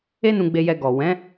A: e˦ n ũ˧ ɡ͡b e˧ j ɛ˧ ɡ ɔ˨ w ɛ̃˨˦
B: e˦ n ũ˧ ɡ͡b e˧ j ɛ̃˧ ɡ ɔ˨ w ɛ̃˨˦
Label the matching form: A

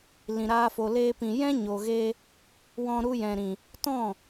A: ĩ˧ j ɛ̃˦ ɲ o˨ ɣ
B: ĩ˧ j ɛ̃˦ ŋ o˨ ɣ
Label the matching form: A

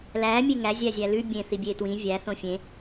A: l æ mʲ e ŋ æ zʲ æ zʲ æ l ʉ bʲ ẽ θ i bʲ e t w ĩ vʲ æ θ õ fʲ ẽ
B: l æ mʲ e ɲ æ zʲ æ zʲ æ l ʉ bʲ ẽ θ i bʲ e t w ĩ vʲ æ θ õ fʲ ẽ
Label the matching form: A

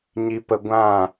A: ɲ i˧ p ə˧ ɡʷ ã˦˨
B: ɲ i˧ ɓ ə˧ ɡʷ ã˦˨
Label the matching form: A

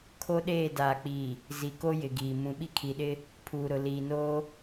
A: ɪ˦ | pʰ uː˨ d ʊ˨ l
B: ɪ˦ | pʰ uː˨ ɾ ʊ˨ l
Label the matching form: B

